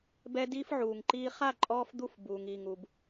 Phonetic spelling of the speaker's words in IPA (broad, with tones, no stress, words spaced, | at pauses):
bɛ˦diː˦fʕuː˨ŋǃiː˦ χa˦˨ ǃʼɔː˦fd̪u˦f buː˨ŋiː˨ŋu˨b